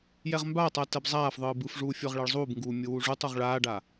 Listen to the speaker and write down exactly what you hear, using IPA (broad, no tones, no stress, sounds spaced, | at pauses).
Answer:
j ɛ ʁ m b aː tˤ a t ɛ b zˤ aː f ðˤ ɯː b ɯ f ʐ uː fʲ ɔ ʁ ɭ ɛ ɭ zˤ uː b ŋ ɡ uː mʲ ɯ w u ʐ u tˤ u ʁ ɭ aː ɖ a